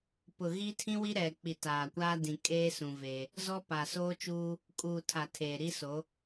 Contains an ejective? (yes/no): yes